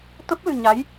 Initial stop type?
plain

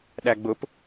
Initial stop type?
implosive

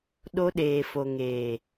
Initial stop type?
implosive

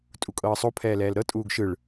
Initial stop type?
ejective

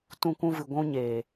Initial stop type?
plain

